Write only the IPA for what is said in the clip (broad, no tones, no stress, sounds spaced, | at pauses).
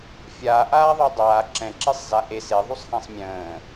fʲ aː ʔ aː ðˤ o dˤ aː ǁ ɛ̃ ǁ e sˤ z a ʔ e s e ðˤ u sˤ h ɛ̃ sˤ mʲ ə̃ː